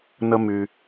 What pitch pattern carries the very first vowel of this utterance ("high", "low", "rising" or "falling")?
high